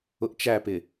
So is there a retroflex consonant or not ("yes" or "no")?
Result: no